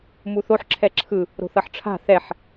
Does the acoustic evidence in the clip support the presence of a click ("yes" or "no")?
yes